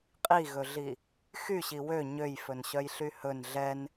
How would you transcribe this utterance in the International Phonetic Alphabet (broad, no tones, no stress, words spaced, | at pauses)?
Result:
qʼiɣɵɮi | xyɕi wø ɲøjfɵnɕœjɬy hɵn ɮɛn